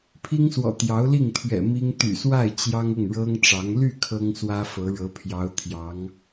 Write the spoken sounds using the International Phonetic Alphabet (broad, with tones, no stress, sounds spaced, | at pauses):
pʰ i˥ ŋ s w ɔ̰˨˩ t̪ j ɑ˧˥ ʊ̯ l i˥˩ ŋ t̪ʰ ɥ ɛ̰˨˩ m i˥ ŋ t̪ y̰˨˩ s w a˥˩ ɪ̯ t͡ɕ j ɑ˥ ŋ ʊ˥˩ ŋ ɻ ɤ˥ ŋ ʈ͡ʂ ɑ˧˥ ŋ l y˥˩ kʰ ɤ˥ ŋ s w ä˥ f ɤ˧˥ ɻ ɤ˧˥ pʰ j ɑ˧˥ ʊ̯ t̪ʰ j ɑ˧˥ ŋ